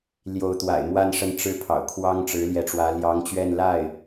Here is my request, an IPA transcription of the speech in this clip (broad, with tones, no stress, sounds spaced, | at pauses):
l j o˧˥ ʊ̯ t̪ w a̰˨˩ ɪ̯ m w a˥˧ n ʂ ə˥˩ n ʈ͡ʂ ɻ̩˥ pʰ ɑ̰˨˩ ʊ̯ kʰ w ɑ˥ ŋ ʈ͡ʂ ɻ̩˧˥ l j ɛ˧˥ ʈ͡ʂ w ä˧˥ l j ɑ˧˥ ŋ t͡ɕ ɥ ɛ˥˧ n l a˥˩ ɪ̯